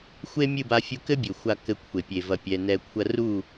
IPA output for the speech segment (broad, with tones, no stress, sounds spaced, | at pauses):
xʷ e˦ mʲ ɨ˦˨ b a˧ fʲ u˧ k ɘ˦ bʲ ɘ˨ xʷ a˧ k ɘ˧ kʷʰ e˨ pʲ e˨ v ɐ˧ pʲ ɛ˧ n ɛ˧ kʷʰ ɐ˧ r u˦˨